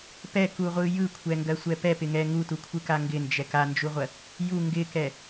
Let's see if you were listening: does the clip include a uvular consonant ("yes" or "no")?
yes